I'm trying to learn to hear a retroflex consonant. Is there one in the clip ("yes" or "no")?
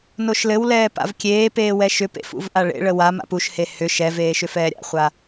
yes